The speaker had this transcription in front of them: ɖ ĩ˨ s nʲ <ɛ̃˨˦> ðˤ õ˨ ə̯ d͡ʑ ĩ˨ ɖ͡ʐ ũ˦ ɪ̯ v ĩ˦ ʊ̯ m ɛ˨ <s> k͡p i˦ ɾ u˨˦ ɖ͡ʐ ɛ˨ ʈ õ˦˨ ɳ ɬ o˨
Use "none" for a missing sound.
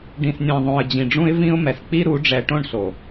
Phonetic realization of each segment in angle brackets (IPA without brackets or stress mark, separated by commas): ɛ̃˨, s